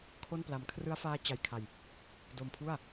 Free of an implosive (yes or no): yes